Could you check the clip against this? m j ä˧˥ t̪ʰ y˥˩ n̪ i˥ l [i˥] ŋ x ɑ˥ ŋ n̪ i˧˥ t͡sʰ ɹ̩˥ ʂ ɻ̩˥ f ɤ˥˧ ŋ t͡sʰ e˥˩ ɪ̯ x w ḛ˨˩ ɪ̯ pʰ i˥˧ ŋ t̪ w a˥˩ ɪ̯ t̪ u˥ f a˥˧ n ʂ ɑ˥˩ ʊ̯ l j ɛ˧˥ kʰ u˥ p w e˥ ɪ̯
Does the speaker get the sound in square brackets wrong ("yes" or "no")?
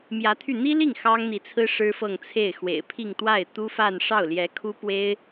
yes